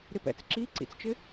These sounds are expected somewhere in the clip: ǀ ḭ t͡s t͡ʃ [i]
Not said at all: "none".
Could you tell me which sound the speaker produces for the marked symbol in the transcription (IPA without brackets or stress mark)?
ɪ